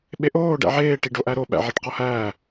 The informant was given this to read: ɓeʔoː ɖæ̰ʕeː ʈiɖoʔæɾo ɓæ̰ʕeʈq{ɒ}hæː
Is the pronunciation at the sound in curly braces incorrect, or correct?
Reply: correct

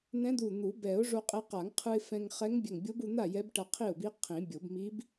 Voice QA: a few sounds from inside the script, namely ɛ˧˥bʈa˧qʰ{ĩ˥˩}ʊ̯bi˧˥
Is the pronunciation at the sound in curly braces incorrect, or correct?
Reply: incorrect: i˥˩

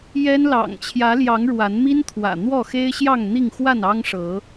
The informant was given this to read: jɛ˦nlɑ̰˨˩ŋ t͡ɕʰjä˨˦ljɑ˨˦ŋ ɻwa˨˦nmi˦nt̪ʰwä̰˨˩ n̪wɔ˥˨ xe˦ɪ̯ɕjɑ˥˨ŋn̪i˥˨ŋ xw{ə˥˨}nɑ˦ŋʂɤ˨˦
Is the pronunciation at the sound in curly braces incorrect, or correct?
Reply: incorrect: a˥˨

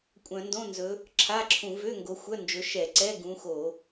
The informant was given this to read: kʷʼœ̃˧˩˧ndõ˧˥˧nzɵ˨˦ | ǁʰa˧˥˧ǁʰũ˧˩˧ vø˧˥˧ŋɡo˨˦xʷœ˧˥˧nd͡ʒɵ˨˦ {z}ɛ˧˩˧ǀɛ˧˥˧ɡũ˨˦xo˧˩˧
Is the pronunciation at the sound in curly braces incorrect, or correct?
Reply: incorrect: ʃ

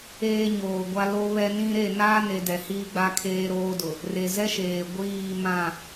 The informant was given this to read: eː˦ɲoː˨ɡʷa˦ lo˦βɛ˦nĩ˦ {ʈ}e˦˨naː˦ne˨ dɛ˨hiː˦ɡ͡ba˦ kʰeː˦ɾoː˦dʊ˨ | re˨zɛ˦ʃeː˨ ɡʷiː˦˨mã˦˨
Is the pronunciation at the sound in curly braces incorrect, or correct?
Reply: incorrect: ɾ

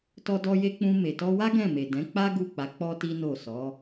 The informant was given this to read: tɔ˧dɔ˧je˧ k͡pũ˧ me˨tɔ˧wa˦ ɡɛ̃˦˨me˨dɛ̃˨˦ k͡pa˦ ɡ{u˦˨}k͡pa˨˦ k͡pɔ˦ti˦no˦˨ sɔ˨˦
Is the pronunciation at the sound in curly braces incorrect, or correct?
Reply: correct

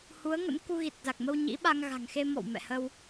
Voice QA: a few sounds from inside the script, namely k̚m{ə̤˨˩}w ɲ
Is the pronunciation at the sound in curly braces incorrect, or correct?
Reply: incorrect: ə˧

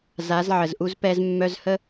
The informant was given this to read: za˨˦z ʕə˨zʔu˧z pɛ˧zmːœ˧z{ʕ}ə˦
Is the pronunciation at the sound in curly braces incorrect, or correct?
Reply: incorrect: h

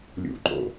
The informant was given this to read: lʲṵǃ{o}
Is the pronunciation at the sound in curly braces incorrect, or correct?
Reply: incorrect: o̰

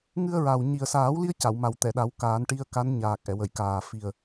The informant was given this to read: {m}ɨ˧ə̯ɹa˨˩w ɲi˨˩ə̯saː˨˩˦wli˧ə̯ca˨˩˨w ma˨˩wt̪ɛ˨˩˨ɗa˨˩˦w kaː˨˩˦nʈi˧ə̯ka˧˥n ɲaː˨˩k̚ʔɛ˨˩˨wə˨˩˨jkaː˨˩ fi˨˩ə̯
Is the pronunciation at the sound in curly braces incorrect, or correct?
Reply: incorrect: ŋ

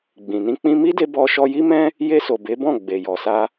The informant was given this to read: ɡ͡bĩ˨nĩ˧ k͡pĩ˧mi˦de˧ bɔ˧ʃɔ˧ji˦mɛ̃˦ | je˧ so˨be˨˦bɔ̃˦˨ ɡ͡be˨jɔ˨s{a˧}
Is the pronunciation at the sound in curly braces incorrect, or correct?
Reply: correct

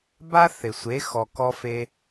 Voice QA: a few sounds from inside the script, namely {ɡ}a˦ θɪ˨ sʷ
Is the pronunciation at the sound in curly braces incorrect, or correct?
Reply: incorrect: b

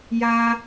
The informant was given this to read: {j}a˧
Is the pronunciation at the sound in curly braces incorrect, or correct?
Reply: correct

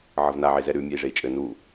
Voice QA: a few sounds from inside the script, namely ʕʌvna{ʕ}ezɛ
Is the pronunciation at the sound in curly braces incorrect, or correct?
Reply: correct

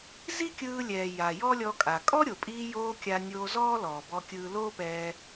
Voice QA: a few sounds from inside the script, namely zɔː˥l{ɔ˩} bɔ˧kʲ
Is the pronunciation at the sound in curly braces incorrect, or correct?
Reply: incorrect: ɔː˩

